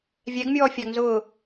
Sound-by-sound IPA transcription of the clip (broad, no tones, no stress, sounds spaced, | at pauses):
vʲ ɛ ɡ mʲ ɔː fʲ ɑ ɡ n z ʊː